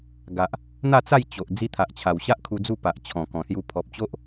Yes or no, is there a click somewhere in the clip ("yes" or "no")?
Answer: no